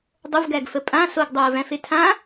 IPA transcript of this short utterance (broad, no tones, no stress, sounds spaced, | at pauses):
dˤ ə v ɡ æ ɡ f ə pʼ ã s o ɡ dˤ o ə̯ v æ̃ f e tʰ ã